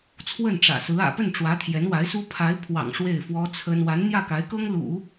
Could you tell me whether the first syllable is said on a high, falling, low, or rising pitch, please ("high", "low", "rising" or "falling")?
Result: falling